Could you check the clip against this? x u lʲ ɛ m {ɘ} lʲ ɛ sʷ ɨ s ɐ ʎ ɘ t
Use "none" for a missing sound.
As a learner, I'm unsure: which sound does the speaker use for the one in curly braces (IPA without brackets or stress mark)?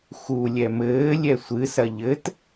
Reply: ɘː